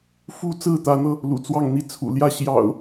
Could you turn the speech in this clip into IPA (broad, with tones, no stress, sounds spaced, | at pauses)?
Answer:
f u˦ t͡s ɹ̩˥˨ t̪ ä˨˦ n̪ ɤ˧ | l ṵ˨˩ t͡s w ɑ˥˨ ŋ n̪ i˥˨ t͡sʰ ṵ˨˩ l j ä˥˨ ɕ j ɑ̰˨˩ ʊ̯